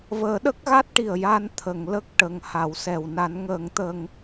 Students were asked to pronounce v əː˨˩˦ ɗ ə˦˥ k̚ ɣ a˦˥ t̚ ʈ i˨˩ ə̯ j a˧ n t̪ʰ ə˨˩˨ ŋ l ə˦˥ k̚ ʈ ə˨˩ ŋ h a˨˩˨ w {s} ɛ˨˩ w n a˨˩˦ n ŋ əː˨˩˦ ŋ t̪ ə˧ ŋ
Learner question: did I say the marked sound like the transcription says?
yes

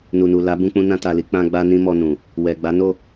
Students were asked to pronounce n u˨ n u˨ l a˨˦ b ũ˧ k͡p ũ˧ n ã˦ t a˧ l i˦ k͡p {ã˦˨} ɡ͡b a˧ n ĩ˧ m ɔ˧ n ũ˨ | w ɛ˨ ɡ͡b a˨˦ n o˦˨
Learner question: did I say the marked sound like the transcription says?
no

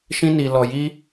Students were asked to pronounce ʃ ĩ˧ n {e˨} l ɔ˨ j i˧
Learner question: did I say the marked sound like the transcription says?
no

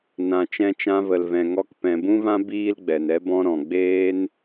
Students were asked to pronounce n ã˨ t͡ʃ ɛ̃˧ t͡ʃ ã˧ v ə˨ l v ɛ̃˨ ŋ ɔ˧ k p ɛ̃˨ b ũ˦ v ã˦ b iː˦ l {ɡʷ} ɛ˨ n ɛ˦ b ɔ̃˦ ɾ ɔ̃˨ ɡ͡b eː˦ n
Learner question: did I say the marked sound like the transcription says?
no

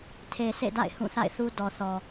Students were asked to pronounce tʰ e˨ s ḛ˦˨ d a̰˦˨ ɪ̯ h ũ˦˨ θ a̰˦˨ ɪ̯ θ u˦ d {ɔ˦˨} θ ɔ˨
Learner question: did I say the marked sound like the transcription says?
no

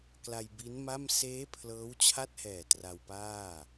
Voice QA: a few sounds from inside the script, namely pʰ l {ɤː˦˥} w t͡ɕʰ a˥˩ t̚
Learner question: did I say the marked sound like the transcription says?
yes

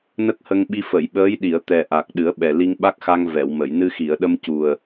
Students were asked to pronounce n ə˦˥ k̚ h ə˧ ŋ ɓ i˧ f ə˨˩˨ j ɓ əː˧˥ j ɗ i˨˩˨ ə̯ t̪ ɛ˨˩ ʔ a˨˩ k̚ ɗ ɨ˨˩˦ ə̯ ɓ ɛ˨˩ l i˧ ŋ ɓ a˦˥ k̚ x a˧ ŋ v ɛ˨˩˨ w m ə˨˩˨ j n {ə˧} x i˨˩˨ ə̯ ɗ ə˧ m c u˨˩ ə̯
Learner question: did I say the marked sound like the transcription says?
no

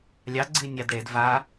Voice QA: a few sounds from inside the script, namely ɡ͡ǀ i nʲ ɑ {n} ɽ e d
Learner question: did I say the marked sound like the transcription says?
no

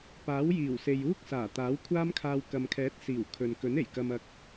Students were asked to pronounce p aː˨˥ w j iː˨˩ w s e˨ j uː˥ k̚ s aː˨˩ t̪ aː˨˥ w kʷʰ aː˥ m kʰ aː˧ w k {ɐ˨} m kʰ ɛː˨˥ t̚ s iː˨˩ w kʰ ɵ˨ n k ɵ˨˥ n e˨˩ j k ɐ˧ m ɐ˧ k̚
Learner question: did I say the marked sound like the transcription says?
yes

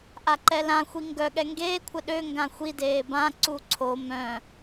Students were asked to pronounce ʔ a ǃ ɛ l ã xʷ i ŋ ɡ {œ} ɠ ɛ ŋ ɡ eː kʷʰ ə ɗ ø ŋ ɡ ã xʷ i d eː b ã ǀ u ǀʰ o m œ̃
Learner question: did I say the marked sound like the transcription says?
yes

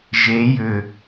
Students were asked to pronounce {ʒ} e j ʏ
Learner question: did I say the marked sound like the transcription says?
yes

